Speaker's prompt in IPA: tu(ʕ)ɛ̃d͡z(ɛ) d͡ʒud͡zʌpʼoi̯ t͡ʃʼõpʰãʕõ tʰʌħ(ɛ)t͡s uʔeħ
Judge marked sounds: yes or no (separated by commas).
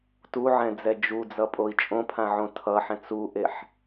yes, yes, no